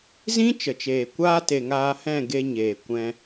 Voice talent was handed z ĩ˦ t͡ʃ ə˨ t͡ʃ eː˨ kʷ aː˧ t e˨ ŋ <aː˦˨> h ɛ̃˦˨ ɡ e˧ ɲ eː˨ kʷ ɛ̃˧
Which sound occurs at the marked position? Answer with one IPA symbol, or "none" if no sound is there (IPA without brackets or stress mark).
aː˧